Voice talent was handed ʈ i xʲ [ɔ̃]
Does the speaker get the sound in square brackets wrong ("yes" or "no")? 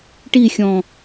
no